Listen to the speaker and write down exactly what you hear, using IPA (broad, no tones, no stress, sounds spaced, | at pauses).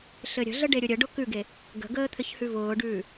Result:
ɬ ɘ ɾʲ ə̤ ɮ ə ɖ e ɾʲ ʊ ɾʲ ə ɖ ʊ k ʉ ɡ e | ɡ ə̤ ɡ əː t̪ʰ ɘ ç h ʉ v ʊː ɖ ʉː